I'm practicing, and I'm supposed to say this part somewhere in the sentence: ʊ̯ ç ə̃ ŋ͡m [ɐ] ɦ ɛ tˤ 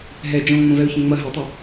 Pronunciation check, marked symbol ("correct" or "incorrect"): correct